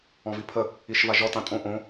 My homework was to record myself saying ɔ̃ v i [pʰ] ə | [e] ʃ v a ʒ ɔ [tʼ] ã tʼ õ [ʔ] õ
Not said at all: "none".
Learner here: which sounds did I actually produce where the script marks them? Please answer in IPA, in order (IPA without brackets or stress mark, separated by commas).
pʰ, i, t, ʔ